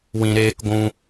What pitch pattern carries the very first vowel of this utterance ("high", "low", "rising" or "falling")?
low